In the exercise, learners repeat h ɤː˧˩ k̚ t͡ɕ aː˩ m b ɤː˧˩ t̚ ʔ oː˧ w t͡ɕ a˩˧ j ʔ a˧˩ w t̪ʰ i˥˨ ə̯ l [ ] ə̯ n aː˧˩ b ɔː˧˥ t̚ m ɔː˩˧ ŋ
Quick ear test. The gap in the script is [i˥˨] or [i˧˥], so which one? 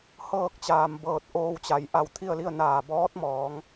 i˥˨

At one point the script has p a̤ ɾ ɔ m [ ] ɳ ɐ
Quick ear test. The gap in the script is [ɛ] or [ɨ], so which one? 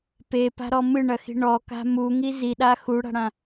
ɨ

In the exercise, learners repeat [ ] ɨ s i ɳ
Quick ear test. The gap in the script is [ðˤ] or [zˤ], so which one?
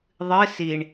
ðˤ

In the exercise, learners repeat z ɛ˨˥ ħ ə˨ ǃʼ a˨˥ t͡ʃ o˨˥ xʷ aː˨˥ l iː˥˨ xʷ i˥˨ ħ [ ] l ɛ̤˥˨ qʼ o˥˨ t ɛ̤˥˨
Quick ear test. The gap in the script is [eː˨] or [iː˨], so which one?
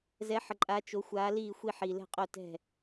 iː˨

